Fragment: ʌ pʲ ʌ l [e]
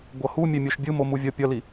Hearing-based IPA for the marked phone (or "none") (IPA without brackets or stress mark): i